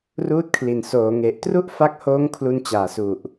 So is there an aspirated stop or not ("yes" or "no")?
yes